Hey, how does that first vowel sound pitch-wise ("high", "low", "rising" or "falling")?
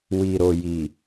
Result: low